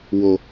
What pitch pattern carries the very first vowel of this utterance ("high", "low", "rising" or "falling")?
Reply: high